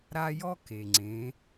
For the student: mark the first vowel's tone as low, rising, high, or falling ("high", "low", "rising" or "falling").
high